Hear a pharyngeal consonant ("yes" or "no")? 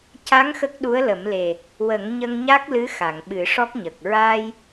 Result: no